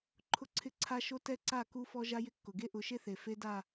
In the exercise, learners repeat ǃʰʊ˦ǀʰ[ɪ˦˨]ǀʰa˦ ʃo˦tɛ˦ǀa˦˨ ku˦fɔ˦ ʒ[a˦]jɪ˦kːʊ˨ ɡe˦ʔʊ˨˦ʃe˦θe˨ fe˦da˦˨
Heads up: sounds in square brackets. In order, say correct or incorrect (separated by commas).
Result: incorrect, correct